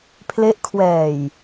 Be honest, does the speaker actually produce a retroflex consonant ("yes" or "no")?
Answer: no